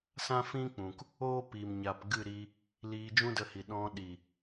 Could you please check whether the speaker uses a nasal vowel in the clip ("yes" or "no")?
yes